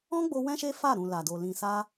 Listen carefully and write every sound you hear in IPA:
ɔ̃˦ ɡ͡b o˧ w ɛ̃˦ ʃ e˦ f a˦˨ ɾ ũ˨ l a˨ d o˨ l ĩ˨ s a˧

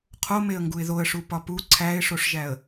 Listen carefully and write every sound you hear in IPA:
qʰ o m e ə̯ ŋ ɡ u ɪ̯ ð o ə̯ ʂ u p ɒ p u ǀʰ æ ɪ̯ ʂ o ʂ ʒ æ ə̯

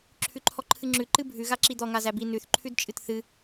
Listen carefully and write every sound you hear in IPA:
ǁʰ ʉ ǃʰ ɔ ǃʰ ɨ ŋ͡ǁ ʉ ǃ ɨ bʱ ʉ ɣ a ǁ i d̪ ɔ ŋ a z æ b i n ʉ θ ǃʰ ʉ d t͡ʃʼ ɨ t θ ɨ

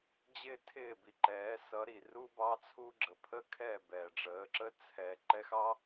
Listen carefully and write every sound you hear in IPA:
d͡ʑ ɪː˦ tʰ ɪː˦˨ b i˨ ǃ ɛː˨˦ s ʌ˨˦ ɾ i˨ r u˦ b ɑ˦ t͡sʰ u˦ ɡ͡ǁ ə˨ pʰ ə˦ kʰ ɛ˦˨ b ɛː˨ ɖ͡ʐ əː˨˦ ǁ ə˦ t͡sʰ ɛ˨ ǃ ɛ˦ x ɑ˦

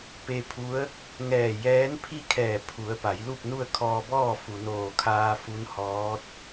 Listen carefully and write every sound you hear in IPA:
p e˧ pʰ u˧˥ ə̯ | ŋ ɛː˧˩ j ɛː˧˥ n pʰ i˥˨ kʰ ɛː˧˩ pʰ u˩˧ ə̯ p a˩˧ j l u˥˨ p̚ n u˥˨ ə̯ kʰ ɔː˧ b ɔː˥˨ f u˩ n oː˧˩ kʰ aː˧ f u˧˥ n h ɔː˧˥ t̚

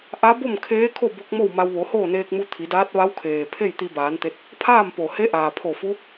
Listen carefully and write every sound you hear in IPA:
ʔ a˧˥ b o˥˨ m kʰ eː˧˥ kʰ o˥˨ b o˧˥ k̚ m o˥˨ w m a˧ w ʋ o˩˧ h oː˥˨ n eː˧ k̚ m u˧ t̪ʰ i˩˧ d aː˧˥ t̚ ʋ a˧˥ w kʰ eː˩ pʰ e˥˨ j t̪ i˧ b aː˩˧ n t̪ e˧ t̚ | pʰ aː˥˨ m p o˩ h e˧˥ ʔ aː˩ pʰ o˧˩ f u˧˥

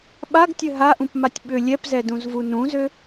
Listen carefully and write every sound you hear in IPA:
ɓ a ɡ tʲ ɘ ɦ a ʔ ũ p m a tʲ ɓ ʏ lʲ ɛ p z ɛ d ũ z v u n ũ z ø

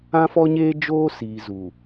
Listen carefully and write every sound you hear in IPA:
ã˦ f ɔ˦ ɲ eː˦ d͡ʒ oː˦ s iː˨ z u˨

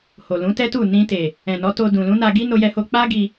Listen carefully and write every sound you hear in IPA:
h o˨ l ũ˨˦ t ɛ˦ t u˦˨ n ĩ˧ t e˨ | ɛ̃˨ n ɔ˨˦ t o˧ d ũ˨ l ũ˨˦ n a˧ ɡ i˦ n o˦ j ɛ˦ h o˦ k͡p a˦ ɡ i˧

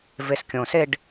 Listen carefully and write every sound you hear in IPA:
v e s kʲ õ s e ɖ

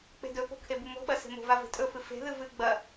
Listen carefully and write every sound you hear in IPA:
k͡p e̤ d ɵ p o̤ kʰ e b u m o̤ ɓ ɐ s e̤ m o̤ v a v e̤ tʼ ɵ f ɨ f e̤ ð ɨ v ɨ ɡ͡b ɐ

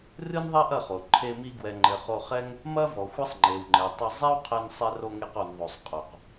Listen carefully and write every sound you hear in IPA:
r ɨ˦ n ðˤ ɛ˦ ʔ ɐ˦˨ χ o˨ ǃʰ e˧ m i˧ ɡ w ɛ˨ ŋ͡ǃ ɘ˨ χ o˧ χ ɛ˦ ŋ | m ɐ˦ v ɔ˨ xʷ ɐ˦ sˤ ŋ͡ǃ e˨ w ŋ͡ǃ ɛ˨ tˤ ɘ˧ zˤ e˦ w qʰ ɛ˧ n sˤ ɛ˧ r o˧ ŋ e˧ q o˨ n ðˤ o˨ sˤ qʼ o˨ q

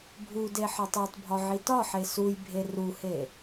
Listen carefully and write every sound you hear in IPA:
bʱ u d e ħ ɒ tˤ o tˤ bʱ ɒ ʕ i t ɒ ħ e s u j bʱ e r u h e

